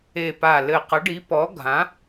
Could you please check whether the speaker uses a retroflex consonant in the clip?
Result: yes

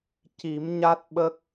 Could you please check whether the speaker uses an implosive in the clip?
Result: yes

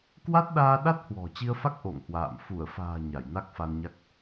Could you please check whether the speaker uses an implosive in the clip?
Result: yes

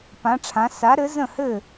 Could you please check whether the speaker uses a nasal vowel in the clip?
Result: yes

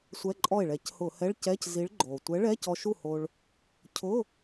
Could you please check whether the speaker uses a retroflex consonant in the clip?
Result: yes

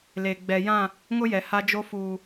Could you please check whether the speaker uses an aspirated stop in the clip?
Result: no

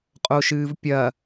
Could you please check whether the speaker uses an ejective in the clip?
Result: yes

